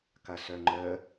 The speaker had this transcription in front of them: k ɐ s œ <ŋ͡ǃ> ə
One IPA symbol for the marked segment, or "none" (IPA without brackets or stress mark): ŋ͡ǃ